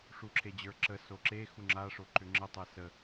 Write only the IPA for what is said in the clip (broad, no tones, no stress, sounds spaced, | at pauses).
ʂ u ǁʰ e d͡ʑ ə˞ ǁ ə s o ǁ e x u ŋ͡ǁ a ʂ o ǃ ʏ ŋ͡ǁ ə tˤ ɛ s ə